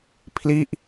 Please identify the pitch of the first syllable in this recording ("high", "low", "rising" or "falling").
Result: falling